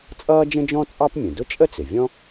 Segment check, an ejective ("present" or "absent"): present